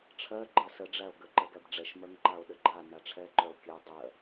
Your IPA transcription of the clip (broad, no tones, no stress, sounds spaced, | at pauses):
ʈ͡ʂʰ ɜ ɡ͡ǃ ɜ s ə ɖ͡ʐ æ o̯ ɡ ə ǃ ɜ ɡ æ b ɖ͡ʐ ɛ ʃ m œ ŋ ǃ a o̯ ɗ ə ɡ͡ǃ a n a ʈ͡ʂʰ ɛ ǃ œ o̯ kʲ ɜ dˤ ɜ